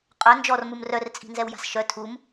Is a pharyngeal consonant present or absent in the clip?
absent